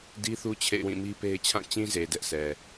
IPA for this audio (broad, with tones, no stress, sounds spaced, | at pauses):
d i˦ θ u˦ t͡ɕʰ ḛ˦˨ ɪ̯ w ĩ˦˨ m i˦ p e˦ ɪ̯ t͡ɕʰ ã˦˨ t͡ɕ ĩ˦ z e˨ d ɛ˦ ʔ sʰ ɛ˨